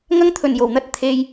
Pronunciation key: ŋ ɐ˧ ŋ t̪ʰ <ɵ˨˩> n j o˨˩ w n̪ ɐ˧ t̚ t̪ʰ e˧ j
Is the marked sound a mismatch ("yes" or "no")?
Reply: no